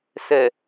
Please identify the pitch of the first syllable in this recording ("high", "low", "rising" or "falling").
low